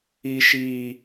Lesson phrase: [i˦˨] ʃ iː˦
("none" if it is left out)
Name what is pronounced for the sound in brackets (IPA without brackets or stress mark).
i˦